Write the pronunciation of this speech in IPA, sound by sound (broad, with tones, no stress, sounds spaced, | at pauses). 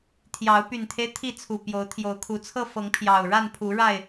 t̪ʰ j ɑ˨˦ ʊ̯ p y˨˩ n t̪ʰ e˦ ɪ̯ t̪ʰ i˥˨ t͡sʰ u˨˩ p j o˨˦ ʊ̯ t̪ʰ j o˨˦ ʊ̯ kʰ u˨˦ t͡sʰ ɤ˥˨ f ɤ˨˦ ŋ pʰ j ɑ˨˩ ʊ̯ ɻ a˥˨ n pʰ u˨˦ ɻ a˥˨ ɪ̯